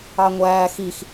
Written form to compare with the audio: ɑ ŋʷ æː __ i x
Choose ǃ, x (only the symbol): x